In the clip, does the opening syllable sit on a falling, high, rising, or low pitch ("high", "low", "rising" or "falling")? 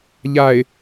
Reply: low